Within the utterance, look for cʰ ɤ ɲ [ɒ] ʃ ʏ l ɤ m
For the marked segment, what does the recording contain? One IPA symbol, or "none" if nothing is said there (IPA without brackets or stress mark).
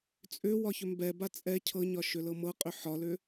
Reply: ɒ